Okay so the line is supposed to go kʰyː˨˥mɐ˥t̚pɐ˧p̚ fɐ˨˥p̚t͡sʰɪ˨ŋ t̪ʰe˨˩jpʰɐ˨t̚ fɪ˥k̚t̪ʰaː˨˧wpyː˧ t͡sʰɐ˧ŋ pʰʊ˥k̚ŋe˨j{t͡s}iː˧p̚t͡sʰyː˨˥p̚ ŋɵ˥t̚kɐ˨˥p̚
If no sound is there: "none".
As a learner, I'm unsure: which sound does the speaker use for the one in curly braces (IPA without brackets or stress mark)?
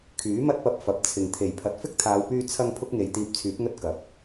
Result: t̪